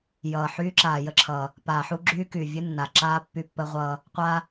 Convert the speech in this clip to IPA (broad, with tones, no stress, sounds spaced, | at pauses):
j ʌː˨ ħ yː˦ ǁ aː˨ j ə˦ ǁʰ ʌ˨ | p aː˨ ħ u˦ ɡ͡ǁ yː˦ k y˨ vʲ ɨ˦ nː a˨ ǁ aː˦ pː y˦ pː ə˦ ʁʷ ʌː˦ | qʷ a˦